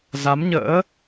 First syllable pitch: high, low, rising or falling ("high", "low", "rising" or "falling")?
rising